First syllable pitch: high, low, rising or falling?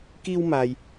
high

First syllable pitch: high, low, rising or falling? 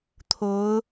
rising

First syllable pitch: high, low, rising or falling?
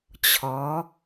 rising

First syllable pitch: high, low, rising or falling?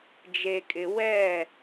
low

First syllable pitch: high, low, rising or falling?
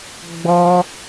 high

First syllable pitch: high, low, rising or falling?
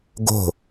falling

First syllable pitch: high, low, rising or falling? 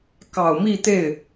low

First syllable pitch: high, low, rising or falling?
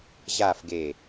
falling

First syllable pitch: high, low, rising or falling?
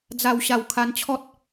low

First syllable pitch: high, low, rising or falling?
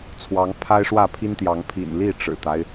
rising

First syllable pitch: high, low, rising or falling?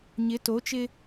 rising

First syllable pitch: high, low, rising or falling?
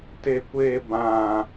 high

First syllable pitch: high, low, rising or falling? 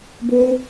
high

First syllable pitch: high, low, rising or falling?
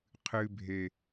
low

